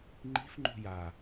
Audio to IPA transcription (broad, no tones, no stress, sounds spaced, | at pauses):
ŋ͡ǃ i̤ f ŋ͡ǃ ṳ j a